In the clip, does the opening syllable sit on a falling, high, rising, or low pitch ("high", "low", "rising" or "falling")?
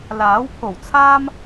rising